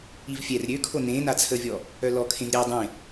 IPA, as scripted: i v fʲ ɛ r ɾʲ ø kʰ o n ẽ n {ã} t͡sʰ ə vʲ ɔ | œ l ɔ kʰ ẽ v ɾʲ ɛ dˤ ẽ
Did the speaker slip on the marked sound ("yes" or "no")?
yes